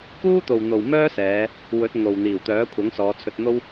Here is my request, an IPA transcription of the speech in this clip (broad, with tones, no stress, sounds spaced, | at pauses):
k uː˥ t̪ o˨ w n̪ o˨ w m œː˥ s ɛː˨˧ | w ɵ˨˥ t̚ ŋ o˨ w n̪ iː˨˩ w t̪ œː˨˥ kʷʰ ɐ˨˥ ŋ s ɔː˨˧ t͡sʰ ɵ˧ t̚ n̪ o˥ w